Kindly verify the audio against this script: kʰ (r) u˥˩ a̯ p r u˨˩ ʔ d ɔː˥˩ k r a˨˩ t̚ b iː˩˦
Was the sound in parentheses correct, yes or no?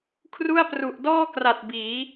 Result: yes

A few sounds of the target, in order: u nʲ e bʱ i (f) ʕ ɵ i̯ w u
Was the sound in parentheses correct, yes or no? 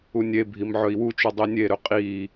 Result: no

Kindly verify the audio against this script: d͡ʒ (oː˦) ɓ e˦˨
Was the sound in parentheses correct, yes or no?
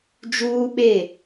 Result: no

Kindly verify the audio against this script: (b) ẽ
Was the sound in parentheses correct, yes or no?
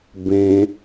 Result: yes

